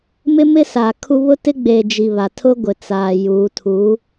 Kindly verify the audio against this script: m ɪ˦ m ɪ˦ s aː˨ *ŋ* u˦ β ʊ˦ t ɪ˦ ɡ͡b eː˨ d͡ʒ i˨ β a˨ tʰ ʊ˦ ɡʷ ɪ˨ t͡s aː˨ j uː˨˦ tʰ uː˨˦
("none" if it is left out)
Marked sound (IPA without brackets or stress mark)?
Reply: kʰ